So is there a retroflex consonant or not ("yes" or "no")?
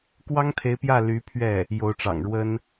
yes